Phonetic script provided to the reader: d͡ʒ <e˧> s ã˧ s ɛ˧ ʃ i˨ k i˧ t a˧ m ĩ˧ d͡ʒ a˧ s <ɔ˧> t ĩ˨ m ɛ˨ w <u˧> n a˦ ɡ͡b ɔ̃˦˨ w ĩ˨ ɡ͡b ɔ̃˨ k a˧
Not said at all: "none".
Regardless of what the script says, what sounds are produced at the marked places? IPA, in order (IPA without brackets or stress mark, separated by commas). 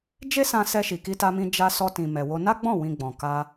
e˦, ɔ˧, o˧